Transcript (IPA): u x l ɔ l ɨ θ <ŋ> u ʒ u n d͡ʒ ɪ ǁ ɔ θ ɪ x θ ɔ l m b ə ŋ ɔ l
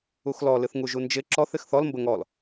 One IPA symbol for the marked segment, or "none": ŋ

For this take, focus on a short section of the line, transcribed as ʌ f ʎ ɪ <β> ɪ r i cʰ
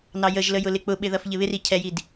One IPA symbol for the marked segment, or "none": β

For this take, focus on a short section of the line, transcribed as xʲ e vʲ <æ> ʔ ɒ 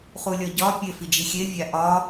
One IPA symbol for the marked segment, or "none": æ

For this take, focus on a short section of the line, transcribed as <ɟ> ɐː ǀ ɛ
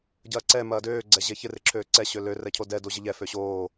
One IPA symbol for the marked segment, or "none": ɟ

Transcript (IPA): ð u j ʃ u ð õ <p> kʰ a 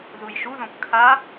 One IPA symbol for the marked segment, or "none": p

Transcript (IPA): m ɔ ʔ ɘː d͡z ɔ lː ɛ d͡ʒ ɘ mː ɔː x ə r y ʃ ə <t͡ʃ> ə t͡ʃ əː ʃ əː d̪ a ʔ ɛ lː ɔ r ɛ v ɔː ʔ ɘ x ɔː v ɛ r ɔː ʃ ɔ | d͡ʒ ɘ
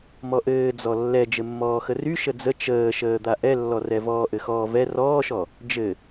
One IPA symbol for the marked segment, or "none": d͡z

